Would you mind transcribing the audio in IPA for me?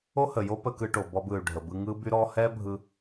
o˥ h ə˩ j o˥ p ə˧ k ɯ˧ ʈ o˩ b ɔ˧ b ɯ˩ y̯ ɖʱ ə˩ b ɯ˧ ŋ ɯ˥ b y˥ ɾ ɔ˥ h ɛ˥ bʱ ɯ˧

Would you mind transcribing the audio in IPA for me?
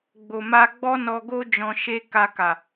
ɡ͡b o˨ m a˧ ɡ͡b ɔ˦ n ɔ˧ ɡ o˦ d͡ʒ ɔ̃˧ ʃ e˦ k a˧ k a˨

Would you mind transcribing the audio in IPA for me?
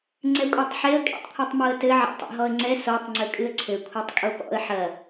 ŋ͡ǀ ɛ kʷʼ i tˤ ħ e ə̯ kʼ ḭ tˤ kʷʰ ɛ tˤ m o ə̯ t ɘ ʕ a̰ tˤ a̰ ɦ ɔ ə̯ ŋ͡ǀ ɛ s o tˤ ŋ͡ǀ ɘ kʼ ɨ ə̯ ǀʰ ɘ kʷʰ ɛ tˤ kʼ o p ɔ̰ ə̯ ħ ɐ

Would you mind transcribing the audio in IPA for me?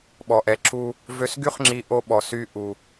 ɓ ɔ˩ ʔ ɛ˩ ǁ u˧ | v ø˧ s ɡ y˥ χ ŋ͡ǁ i˧ ʔ o˧ ɓ ɔ˩ s y˧ ʔ u˩

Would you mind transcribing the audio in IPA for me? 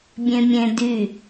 bʲ ẽ mʲ ẽ d y

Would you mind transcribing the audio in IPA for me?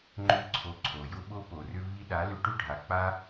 ŋ͡ǃ ʏ˧ ǀʰ o˧ ǀʰ o˨ j ʊ˦ ɓ o˦ p o˨ r ʏ˦ v i˦ ɗ a˨˦ l ʏ˧ ʈ ʏ˦ ɖʱ a˨ k͡p a˦

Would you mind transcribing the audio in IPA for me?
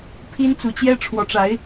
pʰ i˥ n t͡s u˧˥ t͡ɕ j ɛ˥ ʈ͡ʂʰ w ɔ˧˥ ʈ͡ʂ a˧˥ ɪ̯

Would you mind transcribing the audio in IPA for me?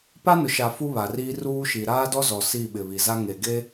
p a˦ n ʊ˨ ʃ a˨ f u˦ β a˨ r iː˦ r uː˦ ʃ i˨ ɾ aː˦ d ɔ˦ z ɔ˨ s i˦˨ ɓ ɪ˨ β i˨ z a˦ ŋ e˨ ɡ e˦

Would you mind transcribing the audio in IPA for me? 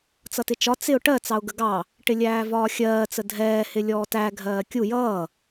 t͡s ʌ t ɪ t͡ʃ ɒ t͡s ɪ ʊ̯ ʈ ɜ t͡s ɑ ʊ̯ ɡ ə ɡ ɑ | ʈ ɪ lʲ æː v ɒː xʲ ɜː t͡s ə dʱ ɛː h ɪ lʲ ɔː t æ ɡʱ ɜː kʲ u j ʌː

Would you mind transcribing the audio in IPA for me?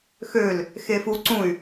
x ø l | x e f u ǀ ũ y̯

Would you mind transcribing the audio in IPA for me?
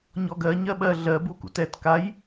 ɲ ɔ ɡ ɜ ɲ ɜ ɓ ɜ ɮ ɜ b u k ṵ t ɛ t k a j

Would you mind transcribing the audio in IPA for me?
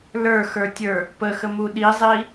l ə˞ x ə˞ tʲ ə˞ | p ə x ə m u ɗ i zˤ i

